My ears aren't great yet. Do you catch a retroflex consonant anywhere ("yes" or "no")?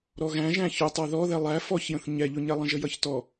no